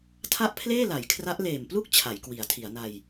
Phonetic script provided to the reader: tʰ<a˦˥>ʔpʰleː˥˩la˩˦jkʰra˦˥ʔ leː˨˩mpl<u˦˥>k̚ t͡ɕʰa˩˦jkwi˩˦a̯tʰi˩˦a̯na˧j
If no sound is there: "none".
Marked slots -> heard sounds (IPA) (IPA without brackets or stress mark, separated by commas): a˥˩, u˥˩